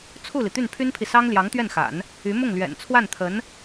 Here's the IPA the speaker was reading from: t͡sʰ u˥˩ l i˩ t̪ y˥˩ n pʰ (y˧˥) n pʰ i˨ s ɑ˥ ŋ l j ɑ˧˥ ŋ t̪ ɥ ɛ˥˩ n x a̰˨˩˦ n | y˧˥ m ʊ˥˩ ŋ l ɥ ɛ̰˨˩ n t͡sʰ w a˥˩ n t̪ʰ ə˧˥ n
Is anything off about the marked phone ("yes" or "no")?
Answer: yes